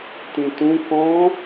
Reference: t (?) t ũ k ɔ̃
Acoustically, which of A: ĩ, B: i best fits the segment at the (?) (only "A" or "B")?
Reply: A